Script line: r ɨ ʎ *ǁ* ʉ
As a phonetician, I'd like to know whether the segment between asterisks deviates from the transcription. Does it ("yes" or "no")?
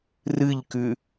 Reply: yes